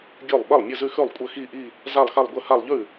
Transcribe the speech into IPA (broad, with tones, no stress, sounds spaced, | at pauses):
ɡʲ ʉ˥˩ lˠ ɓ ɘ˥˩ lˠ mʲ ɘ˥˧ z ʉ˥˧ x ʉ˥˩ lˠ kʷʼ ə˥˧ x i˥˧ ʔ i˥˧ | z a˥˧ lˠ x a˥˧ lˠ ɡʷ ɘ˥˧ h a˥˧ lˠ ʎ ʉ˥˩